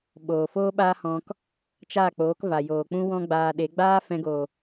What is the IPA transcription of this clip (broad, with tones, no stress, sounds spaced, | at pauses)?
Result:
ɓ oː˨ f oː˦ ɓ aː˦ h ɔ̃˧ k | t͡ʃ a˦˨ k͡p oː˨˦ k v a˨ j oː˨ k͡p ũ˦ w ɔ̃˦ ɡ͡b aː˧ ɗ e˨˦ ɡ͡b aː˦ f ɛ̃˧ ɡ oː˨